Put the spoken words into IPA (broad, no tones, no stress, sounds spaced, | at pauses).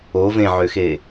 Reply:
o v ẽ ʕ ø x e